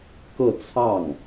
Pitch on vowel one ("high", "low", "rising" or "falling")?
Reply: falling